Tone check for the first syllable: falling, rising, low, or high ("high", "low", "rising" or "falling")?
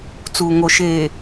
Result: low